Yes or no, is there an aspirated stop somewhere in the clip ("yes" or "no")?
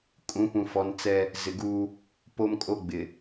no